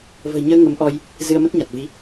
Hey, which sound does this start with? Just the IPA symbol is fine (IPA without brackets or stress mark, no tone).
v